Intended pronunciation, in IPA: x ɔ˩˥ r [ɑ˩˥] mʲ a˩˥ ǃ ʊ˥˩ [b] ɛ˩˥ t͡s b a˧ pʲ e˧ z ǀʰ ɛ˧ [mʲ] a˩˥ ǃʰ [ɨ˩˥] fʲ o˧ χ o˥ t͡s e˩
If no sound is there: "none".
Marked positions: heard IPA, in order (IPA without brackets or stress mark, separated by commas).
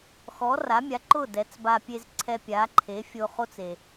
a˩˥, d, pʲ, e˩˥